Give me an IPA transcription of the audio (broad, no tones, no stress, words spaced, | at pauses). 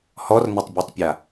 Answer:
hɔrnətˤbʲɔtˤpʲa